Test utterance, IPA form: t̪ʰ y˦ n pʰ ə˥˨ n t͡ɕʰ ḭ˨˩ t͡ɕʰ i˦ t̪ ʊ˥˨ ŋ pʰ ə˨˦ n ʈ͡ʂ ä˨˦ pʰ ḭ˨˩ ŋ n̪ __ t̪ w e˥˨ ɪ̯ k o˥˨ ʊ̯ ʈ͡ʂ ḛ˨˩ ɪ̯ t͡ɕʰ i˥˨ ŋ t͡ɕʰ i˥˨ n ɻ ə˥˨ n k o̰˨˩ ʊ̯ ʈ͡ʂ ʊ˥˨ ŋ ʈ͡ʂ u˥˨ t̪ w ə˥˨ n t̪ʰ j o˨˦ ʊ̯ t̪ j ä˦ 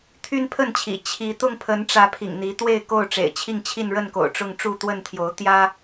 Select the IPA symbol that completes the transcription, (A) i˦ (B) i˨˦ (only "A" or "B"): B